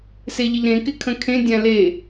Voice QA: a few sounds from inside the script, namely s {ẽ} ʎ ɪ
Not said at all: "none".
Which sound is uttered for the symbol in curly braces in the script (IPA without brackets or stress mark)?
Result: e